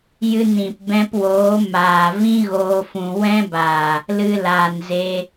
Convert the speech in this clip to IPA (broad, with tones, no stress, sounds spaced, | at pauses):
j ɨ˧ n ĩ˨ p b ɛ̃˧ p w oː˨˦ m aː˨ v ĩ˦ ɣ oː˦ f ũ˧ w ɛ̃˦ b aː˨ | l ɨ˧ l aː˨ n z e˧